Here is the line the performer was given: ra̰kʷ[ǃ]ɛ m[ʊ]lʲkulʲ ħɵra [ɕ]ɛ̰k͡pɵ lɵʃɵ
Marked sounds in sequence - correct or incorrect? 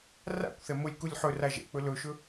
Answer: incorrect: θ, correct, incorrect: ʒ

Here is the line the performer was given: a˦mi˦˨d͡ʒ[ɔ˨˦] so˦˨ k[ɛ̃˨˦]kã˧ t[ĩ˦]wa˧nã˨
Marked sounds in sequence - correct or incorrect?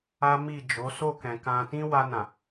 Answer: incorrect: o˨˦, incorrect: ɛ̃˨, correct

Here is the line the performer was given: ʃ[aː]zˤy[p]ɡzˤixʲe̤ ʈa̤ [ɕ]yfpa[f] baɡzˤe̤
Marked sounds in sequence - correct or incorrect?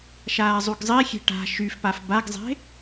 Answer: correct, incorrect: none, incorrect: ʃ, correct

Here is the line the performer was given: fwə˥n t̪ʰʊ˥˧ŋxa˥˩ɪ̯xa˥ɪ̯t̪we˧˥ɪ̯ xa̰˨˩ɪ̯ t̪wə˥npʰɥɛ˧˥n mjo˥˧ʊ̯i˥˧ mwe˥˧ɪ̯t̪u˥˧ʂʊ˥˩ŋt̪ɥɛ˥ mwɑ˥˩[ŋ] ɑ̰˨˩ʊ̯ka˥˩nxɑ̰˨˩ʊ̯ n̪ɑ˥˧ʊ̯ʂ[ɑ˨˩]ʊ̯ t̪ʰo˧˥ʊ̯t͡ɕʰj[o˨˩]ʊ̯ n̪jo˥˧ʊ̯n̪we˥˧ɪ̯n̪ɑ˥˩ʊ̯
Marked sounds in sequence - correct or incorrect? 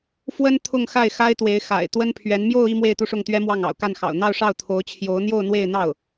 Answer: correct, incorrect: ɑ˥˩, incorrect: o˧˥

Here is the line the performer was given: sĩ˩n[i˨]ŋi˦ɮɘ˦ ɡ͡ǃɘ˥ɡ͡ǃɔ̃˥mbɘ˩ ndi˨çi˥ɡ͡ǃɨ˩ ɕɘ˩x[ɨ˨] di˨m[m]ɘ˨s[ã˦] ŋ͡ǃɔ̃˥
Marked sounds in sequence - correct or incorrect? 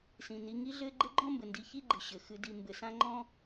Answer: correct, correct, incorrect: b, correct

